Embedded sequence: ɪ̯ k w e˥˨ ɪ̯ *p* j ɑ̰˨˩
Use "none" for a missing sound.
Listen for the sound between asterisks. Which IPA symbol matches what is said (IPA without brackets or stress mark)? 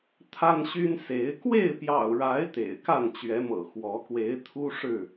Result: p